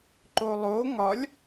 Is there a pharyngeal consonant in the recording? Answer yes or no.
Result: no